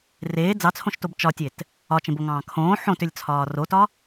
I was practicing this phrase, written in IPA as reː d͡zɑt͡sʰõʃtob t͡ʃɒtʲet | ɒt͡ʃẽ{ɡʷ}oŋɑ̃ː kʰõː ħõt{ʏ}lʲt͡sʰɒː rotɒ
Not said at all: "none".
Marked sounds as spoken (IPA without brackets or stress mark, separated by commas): b, ʏ